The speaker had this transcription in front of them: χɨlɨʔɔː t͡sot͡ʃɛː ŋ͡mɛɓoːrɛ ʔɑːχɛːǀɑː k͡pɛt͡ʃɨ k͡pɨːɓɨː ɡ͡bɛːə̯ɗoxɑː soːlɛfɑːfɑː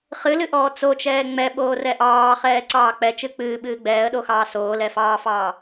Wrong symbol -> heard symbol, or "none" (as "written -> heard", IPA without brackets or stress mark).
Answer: none